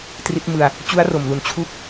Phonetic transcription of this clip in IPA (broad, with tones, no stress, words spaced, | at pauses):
tri˦˥t̚mɯ˧a̯ | t͡ɕu˦˥a̯ro˨˩mlu˨˩n t͡ɕʰu˥˩k̚